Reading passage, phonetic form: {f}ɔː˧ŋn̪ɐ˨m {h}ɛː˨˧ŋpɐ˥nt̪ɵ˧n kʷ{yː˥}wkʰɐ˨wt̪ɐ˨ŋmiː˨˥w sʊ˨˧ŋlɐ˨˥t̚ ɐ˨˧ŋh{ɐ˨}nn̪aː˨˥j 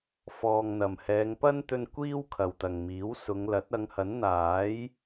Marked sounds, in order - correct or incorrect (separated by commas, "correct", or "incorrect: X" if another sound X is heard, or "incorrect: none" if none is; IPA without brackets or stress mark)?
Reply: correct, correct, incorrect: iː˥, incorrect: ɐ˨˥